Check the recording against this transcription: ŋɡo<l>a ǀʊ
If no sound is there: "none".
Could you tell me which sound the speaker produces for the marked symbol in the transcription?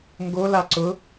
l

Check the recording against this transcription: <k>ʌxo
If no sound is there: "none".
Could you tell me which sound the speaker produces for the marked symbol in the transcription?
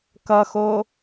k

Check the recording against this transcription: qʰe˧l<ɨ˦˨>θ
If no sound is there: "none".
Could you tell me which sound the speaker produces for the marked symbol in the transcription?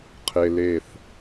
e˦˨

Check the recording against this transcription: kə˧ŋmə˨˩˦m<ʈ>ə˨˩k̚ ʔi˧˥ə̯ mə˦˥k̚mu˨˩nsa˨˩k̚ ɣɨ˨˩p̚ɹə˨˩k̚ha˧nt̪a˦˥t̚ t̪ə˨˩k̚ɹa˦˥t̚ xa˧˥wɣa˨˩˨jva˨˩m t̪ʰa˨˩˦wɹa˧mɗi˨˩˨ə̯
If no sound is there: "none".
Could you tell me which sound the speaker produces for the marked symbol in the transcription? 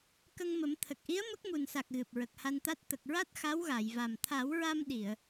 t̪ʰ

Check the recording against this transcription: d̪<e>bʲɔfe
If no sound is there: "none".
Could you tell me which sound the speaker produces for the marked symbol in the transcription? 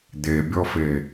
e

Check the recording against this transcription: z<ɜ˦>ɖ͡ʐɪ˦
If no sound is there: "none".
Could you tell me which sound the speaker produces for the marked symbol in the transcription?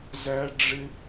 æ˦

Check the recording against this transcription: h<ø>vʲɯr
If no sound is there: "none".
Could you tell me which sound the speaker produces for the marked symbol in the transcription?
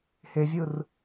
e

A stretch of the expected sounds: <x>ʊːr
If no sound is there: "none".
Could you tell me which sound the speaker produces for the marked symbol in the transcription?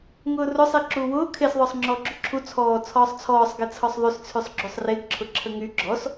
ŋ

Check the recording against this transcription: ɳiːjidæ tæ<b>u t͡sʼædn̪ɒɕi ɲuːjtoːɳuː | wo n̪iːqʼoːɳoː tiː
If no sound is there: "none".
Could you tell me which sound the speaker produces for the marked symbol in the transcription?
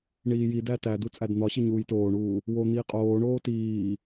d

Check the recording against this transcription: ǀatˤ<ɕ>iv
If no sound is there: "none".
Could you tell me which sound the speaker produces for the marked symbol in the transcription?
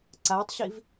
ɕ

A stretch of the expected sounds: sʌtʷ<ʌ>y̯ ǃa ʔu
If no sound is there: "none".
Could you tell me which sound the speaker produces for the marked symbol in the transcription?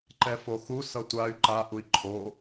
a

